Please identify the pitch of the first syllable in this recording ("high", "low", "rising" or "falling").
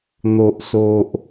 low